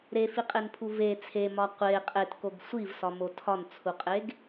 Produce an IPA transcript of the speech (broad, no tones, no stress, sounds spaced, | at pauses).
ɾ e f i qʼ e n pʰ u v e t͡sʰ e m ɒ qʷ e qʼ e t k o ɡ sʷ i v s ɒ m o tʰ ɒ n t͡sʰ u qʼ e ɡ